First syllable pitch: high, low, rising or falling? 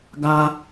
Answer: high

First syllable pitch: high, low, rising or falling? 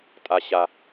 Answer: low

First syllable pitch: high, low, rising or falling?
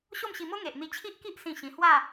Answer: falling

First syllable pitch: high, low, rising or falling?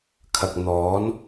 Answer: low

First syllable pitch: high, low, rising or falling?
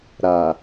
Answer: low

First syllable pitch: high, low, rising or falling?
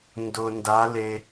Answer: low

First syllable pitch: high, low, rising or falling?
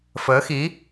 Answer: rising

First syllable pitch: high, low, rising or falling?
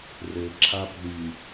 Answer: low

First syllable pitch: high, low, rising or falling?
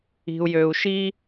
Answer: low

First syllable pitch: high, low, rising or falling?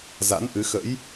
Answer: rising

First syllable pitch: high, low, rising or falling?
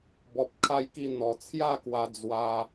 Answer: low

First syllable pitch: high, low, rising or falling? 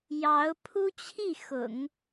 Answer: rising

